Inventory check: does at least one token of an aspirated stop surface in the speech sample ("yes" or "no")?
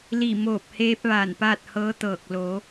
no